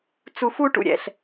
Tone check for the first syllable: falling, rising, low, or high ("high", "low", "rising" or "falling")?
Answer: low